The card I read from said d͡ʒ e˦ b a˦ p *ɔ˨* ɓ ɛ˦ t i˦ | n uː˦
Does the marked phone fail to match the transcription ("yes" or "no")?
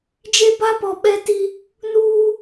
no